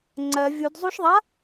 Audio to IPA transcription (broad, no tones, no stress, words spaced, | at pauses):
ŋ͡ǀɜ vʲudzˤuʃðˤa